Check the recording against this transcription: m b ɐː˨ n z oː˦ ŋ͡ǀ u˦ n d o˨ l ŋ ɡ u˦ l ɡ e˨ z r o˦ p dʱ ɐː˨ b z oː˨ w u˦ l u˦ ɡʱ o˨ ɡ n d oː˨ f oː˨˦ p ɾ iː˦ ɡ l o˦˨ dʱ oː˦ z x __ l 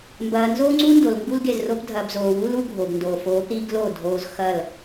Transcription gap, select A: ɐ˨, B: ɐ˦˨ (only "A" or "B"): B